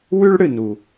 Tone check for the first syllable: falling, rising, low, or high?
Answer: high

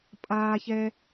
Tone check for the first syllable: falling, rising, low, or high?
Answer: high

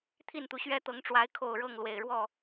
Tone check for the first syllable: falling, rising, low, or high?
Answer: falling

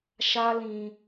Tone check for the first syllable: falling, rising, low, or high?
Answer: high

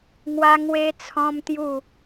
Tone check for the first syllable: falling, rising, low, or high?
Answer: high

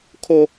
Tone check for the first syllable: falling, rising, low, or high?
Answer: high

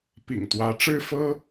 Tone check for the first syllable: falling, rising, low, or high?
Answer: low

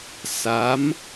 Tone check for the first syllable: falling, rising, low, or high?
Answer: rising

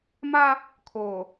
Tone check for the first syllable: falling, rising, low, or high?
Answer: high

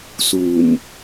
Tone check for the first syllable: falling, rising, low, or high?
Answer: low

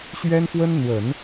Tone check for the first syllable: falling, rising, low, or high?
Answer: high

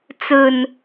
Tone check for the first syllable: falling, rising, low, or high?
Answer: low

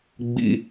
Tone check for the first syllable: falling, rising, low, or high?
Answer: high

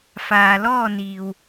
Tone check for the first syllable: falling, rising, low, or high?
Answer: low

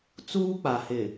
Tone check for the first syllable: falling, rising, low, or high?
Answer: high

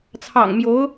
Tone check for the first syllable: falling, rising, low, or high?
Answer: low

